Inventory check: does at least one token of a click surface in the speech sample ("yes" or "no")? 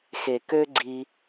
yes